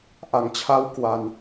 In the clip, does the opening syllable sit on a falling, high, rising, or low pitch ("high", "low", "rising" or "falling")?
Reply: low